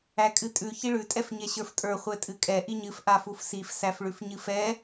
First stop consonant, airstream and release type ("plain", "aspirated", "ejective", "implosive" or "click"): ejective